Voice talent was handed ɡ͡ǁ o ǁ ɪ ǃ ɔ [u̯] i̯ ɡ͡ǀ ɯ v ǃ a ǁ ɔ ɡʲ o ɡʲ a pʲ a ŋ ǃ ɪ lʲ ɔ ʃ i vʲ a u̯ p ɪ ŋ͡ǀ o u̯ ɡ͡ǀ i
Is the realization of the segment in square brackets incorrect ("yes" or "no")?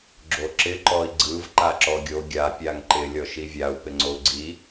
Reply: yes